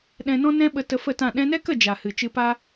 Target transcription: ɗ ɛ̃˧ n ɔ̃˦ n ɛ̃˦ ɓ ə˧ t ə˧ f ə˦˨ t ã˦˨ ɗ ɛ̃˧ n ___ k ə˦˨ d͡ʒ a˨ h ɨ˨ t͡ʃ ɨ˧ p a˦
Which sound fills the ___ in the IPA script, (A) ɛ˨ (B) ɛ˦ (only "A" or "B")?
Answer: B